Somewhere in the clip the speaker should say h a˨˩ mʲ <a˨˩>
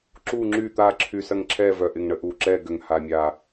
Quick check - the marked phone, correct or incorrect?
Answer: correct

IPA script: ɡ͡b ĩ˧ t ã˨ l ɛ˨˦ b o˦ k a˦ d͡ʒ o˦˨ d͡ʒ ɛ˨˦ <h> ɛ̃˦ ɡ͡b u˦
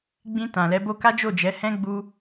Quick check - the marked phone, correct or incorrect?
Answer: correct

